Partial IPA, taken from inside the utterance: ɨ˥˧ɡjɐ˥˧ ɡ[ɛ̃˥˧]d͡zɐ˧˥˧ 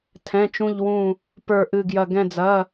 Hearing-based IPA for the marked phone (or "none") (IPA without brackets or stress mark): ɛ̃˥˧